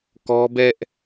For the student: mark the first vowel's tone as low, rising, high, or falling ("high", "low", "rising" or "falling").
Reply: high